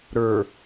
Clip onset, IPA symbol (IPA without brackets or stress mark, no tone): ɾ